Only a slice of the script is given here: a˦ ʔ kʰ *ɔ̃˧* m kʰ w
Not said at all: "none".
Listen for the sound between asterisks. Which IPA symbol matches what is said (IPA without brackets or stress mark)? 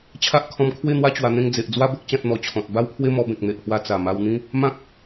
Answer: ɔ̃˧